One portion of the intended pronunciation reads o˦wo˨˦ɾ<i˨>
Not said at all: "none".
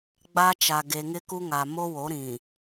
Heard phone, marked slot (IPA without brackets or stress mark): ĩ˨